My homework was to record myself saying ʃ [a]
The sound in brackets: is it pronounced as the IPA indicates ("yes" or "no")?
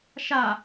yes